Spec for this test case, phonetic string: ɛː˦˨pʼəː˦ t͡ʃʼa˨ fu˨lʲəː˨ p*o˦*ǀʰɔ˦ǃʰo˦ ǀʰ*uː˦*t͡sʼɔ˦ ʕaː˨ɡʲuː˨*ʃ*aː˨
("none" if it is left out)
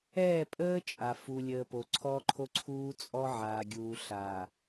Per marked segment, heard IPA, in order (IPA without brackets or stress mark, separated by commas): o˨, uː˦, ɬ